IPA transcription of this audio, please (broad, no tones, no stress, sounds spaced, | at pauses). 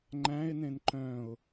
ŋ͡ǃ æ̃ ɪ̯ n ẽ n ǃ œ̃ ʊ̯